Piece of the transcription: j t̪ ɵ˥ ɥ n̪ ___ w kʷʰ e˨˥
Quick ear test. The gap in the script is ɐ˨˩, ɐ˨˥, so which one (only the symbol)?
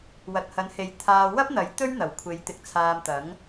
ɐ˨˩